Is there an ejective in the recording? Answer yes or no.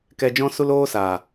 no